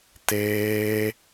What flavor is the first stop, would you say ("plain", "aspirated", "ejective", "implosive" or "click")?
plain